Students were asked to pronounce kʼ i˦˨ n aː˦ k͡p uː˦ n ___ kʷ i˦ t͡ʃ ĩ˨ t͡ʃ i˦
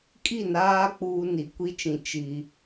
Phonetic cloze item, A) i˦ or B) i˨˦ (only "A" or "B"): B